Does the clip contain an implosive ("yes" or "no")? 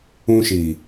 no